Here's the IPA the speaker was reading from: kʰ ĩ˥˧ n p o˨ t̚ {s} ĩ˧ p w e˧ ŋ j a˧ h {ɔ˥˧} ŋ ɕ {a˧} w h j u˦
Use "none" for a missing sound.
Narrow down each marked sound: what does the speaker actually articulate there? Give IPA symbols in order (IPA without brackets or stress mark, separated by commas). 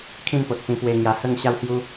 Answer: t͡s, ə˥˧, a˦